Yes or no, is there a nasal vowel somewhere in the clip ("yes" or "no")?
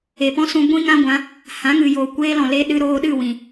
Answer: yes